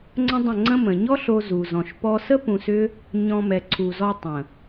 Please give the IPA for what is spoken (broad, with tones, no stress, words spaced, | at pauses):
ŋ͡ǀə̃˦dˤə̃˦˨ŋ͡ǀə̃˦ mə̃˨ɲɔ˦ɬo˧ zu˨zɔ̃˨ʃ pɔ˧sə˦ pũ˧sʏ˦ | ɲɔ̃˧mɛ˨ǀʰu˨zɔ˧ tˤə̃˨